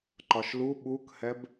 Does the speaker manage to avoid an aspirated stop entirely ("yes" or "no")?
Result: yes